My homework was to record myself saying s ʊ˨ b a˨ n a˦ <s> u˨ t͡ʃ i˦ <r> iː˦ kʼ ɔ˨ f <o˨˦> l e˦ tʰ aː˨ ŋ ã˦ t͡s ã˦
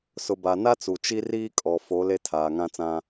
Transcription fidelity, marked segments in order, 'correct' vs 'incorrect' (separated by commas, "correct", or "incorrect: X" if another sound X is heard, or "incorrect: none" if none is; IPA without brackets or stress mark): incorrect: t͡s, correct, correct